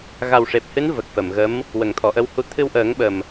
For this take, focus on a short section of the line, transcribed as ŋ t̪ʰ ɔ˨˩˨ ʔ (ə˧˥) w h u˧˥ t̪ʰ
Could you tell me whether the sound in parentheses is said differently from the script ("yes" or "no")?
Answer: no